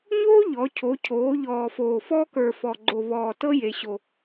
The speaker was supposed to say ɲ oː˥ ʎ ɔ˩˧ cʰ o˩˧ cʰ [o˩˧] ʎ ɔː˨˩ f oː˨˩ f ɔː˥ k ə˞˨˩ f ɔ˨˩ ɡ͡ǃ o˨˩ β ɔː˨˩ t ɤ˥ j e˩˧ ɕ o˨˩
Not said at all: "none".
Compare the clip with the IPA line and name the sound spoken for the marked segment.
oː˩˧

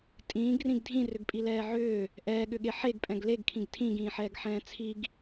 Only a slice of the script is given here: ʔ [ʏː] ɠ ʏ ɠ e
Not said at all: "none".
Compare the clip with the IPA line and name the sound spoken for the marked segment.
ɛː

